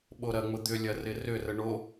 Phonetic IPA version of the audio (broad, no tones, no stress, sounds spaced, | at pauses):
ɓ o ɾ ɐ ŋ͡m ʊ d̪ ʏ lʲ ɐ r ɪ r ʏ r ə ɳ o